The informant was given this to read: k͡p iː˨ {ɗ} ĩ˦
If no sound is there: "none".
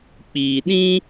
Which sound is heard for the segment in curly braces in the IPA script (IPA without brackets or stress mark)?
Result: ɗ